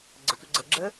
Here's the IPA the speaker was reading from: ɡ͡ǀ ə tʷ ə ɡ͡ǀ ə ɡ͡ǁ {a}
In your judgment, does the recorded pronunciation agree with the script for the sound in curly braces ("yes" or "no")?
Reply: no